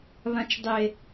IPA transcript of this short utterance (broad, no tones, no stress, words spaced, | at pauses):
βãt͡ʃdˤe